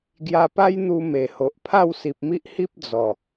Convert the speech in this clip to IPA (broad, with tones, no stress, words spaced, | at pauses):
ɡja˧pa˦jn̪u˧ me˨˩ho˨ʔ pʰa˥˧wsi˨p̚mi˦ʔhi˦p̚ d͡zɔ˨˩